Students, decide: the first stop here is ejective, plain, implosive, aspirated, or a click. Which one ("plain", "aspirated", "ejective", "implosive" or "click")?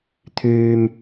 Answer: aspirated